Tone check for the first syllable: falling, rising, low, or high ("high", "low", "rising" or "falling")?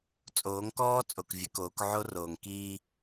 rising